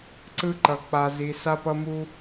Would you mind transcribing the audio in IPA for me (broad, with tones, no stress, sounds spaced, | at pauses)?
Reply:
ǀ ɯ˥ ǃ ʌ˧ k͡p a˧ z i˧ s a˥ p ʌ˥ m u˥